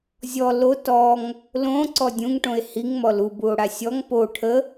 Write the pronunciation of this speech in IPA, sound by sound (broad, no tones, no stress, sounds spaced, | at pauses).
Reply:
zʲ ɔ l o t ɔ ŋ | l õ ǀ ɔ dʲ ũ ŋ ʈ õ e̯ h i ŋ m ɔ l u b u o̯ ɽ a sʲ ɔ ŋ p o ʈʰ ə